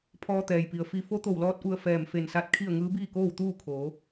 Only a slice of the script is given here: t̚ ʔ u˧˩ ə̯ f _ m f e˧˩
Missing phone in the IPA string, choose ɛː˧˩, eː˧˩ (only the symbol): ɛː˧˩